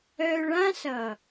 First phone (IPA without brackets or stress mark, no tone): œ